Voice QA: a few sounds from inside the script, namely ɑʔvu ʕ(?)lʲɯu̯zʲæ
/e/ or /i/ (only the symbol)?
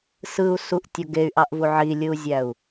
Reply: i